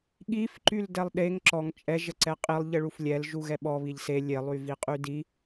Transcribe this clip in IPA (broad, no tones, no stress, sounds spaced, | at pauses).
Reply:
ɠ i f ǃ y l d ɛ lˠ ɗ e ŋ ǁ ɔ ŋ t͡ʃʼ ɛ ʒ ə ǀ ɛ qʼ i lˠ ʎ ə ɭ u f lʲ ɛ l ʒ u ɣ ɛ ɓ ɔ β i ʎ s e lʲ e lˠ y v i qʼ y d i